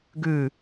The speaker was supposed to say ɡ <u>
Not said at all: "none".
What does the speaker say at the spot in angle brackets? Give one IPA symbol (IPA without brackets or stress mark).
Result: ʉ